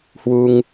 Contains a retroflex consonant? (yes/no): no